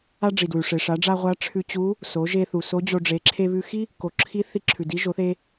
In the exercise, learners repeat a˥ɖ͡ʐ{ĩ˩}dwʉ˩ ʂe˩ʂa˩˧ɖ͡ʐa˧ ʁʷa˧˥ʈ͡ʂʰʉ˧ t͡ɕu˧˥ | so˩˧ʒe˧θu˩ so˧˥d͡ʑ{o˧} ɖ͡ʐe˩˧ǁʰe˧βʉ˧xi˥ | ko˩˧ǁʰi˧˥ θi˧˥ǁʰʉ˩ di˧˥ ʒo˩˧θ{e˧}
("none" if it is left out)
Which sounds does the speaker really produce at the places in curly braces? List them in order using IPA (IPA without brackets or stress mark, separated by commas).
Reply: i˩, o˧, e˧